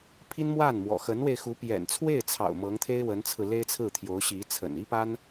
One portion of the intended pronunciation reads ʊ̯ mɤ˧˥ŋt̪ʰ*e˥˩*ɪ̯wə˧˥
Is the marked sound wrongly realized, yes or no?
yes